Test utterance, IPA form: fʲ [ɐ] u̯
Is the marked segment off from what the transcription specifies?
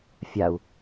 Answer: yes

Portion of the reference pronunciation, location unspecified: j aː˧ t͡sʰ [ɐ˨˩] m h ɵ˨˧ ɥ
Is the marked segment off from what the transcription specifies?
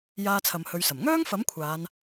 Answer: yes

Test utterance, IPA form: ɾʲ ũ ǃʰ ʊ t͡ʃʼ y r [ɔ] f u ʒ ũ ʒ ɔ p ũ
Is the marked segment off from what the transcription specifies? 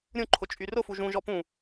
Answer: yes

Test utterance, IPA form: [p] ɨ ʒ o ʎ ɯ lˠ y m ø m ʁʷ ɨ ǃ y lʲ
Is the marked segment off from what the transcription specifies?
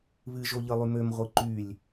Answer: yes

